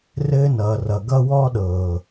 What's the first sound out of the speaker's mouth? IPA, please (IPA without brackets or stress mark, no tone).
r